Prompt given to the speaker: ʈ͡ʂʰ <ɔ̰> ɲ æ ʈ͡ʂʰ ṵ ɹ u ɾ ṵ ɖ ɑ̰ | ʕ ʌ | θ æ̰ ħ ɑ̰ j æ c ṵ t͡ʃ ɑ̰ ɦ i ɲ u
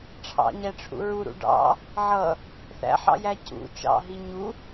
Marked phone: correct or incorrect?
incorrect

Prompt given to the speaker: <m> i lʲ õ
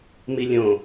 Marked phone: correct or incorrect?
correct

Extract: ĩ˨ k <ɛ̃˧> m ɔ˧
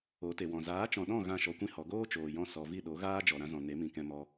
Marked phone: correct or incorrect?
correct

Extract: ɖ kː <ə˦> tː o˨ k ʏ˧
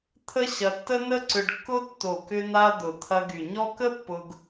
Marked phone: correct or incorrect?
incorrect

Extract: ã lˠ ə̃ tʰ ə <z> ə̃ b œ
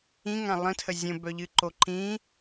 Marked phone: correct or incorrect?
incorrect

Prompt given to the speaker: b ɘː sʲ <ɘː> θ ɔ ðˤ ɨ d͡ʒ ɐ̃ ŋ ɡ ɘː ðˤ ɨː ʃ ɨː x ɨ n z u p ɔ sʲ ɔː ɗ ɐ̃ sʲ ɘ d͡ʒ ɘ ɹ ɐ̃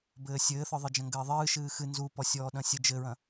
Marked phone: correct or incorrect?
correct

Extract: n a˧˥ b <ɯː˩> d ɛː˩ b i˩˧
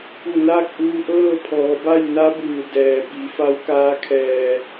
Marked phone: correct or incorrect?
correct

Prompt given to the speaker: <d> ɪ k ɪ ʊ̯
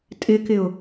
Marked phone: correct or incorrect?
incorrect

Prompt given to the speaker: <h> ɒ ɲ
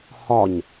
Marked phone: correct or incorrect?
correct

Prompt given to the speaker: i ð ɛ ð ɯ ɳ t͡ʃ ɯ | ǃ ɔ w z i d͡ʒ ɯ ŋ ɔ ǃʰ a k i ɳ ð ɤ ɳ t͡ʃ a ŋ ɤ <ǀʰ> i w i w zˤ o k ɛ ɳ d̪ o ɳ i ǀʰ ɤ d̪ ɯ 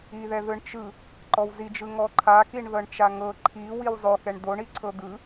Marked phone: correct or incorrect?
incorrect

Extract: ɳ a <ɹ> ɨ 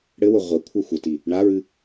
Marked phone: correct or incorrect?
correct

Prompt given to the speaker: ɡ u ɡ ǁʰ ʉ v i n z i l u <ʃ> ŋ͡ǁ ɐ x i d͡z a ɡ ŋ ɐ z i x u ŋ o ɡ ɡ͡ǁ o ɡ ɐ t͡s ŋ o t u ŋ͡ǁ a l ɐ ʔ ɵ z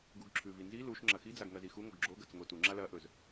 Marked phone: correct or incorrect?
correct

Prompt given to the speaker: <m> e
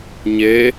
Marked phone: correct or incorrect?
incorrect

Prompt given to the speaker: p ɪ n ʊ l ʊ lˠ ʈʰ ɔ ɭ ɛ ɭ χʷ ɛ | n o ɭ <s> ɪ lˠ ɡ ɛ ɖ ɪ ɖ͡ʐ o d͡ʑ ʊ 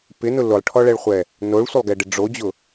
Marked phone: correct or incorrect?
incorrect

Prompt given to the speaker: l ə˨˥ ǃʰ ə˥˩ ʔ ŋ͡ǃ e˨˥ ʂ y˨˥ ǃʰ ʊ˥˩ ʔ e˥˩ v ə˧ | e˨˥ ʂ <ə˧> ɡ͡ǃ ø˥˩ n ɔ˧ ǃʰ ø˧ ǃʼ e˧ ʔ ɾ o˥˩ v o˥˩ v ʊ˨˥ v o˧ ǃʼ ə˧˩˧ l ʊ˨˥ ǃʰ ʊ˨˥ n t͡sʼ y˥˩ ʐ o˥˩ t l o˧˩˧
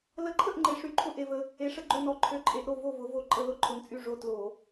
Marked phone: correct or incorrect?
correct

